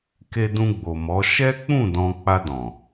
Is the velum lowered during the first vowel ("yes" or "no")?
no